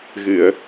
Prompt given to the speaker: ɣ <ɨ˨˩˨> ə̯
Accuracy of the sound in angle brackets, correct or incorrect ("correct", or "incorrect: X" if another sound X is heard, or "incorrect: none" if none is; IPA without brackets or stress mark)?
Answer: correct